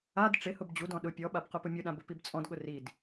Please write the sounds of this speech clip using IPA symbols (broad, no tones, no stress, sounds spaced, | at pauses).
a d ʈ͡ʂ ɪ h ʊ b d͡ʑ u d ɔ̃ ɗ ʊ pʲ ɔ ɓ a b q ʊ p ʊ mʲ ʊ ɗ ã b ʊ p i b t͡sʼ ɔ̃ d ɠ ʊ r i d